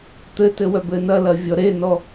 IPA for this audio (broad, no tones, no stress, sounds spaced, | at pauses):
t̪ ɘ t ɘ w œ b ɘ n ɐ l ɐ vʲ ɔ ɾ e n ɔ